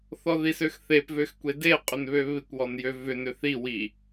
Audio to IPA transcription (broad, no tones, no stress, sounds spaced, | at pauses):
θ ɔ ð i s ø x θ e p v ø x kʷ e d e qʼ ʏ n β ø β ɪ kʷ w ɔ n j ø v ʏ n ʏ θ i w i